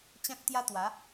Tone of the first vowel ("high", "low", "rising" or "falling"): high